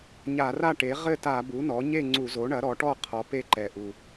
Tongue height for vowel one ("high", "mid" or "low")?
low